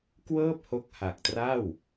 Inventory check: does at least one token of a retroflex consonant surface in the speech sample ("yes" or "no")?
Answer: no